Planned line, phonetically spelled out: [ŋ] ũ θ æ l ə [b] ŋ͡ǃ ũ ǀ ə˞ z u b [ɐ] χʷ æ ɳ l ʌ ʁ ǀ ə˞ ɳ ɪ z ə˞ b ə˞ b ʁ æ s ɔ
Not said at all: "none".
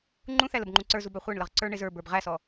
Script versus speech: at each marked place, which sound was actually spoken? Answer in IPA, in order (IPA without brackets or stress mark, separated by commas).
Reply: ŋ͡ǃ, b, æ